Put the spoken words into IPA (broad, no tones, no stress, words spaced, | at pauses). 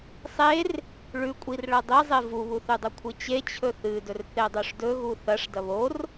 sˤer | ɭʉkʷʼir ɭɐdˤizˤe vuβuθʉdˤɐ kʷʰɨt͡ɕe t͡ɕʰɵθɨdɵr θedˤoʂdɵɣu θɐʂ dɐβor